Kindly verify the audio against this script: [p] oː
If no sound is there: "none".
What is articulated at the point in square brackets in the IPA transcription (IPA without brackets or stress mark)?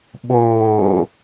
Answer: ɓ